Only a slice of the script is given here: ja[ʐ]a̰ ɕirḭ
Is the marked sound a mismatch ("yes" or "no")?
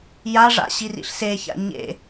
no